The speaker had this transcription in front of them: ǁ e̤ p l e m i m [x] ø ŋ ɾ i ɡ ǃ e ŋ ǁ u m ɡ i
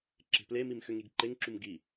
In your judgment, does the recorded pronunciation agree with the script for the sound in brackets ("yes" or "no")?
yes